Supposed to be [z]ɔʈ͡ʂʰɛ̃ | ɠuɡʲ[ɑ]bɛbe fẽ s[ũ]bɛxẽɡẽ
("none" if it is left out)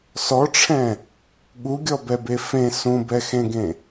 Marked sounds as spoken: s, ɔ, ũ

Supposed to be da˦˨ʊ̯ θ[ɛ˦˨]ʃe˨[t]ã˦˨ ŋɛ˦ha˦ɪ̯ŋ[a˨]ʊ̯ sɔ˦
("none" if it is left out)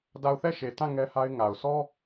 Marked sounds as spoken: ɛ˦˨, t, a˨

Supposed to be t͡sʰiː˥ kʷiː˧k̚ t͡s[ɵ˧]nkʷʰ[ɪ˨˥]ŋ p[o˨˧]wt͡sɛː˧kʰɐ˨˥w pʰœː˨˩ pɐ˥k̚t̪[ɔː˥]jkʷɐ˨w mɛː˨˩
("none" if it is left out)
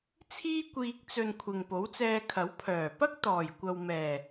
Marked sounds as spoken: ɵ˧, ɪ˨, o˨˥, ɔː˨˩

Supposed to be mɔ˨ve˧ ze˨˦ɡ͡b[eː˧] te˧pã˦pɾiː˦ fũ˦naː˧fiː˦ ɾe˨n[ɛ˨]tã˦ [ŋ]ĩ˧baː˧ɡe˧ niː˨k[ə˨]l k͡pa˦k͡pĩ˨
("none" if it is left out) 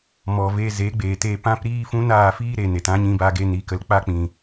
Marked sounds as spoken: eː˨, e˨, ɲ, ə˨

